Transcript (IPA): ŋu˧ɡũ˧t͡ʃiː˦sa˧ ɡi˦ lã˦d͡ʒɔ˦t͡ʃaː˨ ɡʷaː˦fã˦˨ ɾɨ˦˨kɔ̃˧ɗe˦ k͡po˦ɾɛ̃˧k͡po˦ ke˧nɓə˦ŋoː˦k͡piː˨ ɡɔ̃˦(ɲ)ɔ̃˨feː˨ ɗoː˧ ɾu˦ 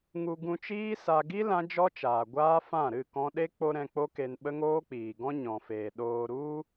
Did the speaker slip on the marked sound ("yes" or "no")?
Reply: no